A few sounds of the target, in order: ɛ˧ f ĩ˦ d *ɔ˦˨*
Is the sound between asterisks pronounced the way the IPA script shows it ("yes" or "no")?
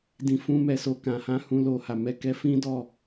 yes